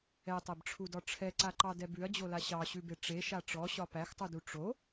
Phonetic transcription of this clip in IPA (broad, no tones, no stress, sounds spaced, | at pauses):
ɛ tˤ e b ʈ͡ʂʰ u d ɒ ʈ͡ʂʰ ɛ ǀ a ǃ ɑ d ɛ b ʉ ɐ̯ d͡ʑ o l a ɕ ɑ ɕ ʉ b e ʈ͡ʂ e ʃ a ʈ͡ʂ ɔ ɕ ɒ p æ x tˤ u d u ʈ͡ʂ o